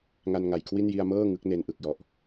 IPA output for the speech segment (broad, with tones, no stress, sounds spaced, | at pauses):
ŋ a˧ n ŋ a˨˩ j kʰ w i˥˩ n j i˧ a̯ m ɤː˥˩ ŋ ɯ˦˥ k̚ n e˧ n ʔ ɯ˨˩ k̚ j ɔ˨˩ ʔ